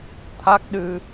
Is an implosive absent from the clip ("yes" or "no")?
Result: no